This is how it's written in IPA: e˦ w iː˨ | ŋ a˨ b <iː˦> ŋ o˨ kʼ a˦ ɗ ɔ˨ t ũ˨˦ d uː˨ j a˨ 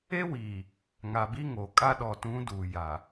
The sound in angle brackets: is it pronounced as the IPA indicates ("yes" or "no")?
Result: no